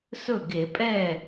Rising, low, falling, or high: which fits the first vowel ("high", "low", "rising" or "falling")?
falling